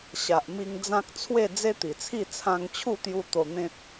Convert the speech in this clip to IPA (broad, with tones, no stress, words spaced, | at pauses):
ɕa˨ʔmi˧ŋ d͡zã˦k̚ t͡sʰwe˥˧ d͡ze˦t̪i˨˩t͡sʰi˥˧ t͡sʰã˧ŋt͡ɕʰu˥˧t̪ju˧ t̪o˧n̪ẽ˦t̚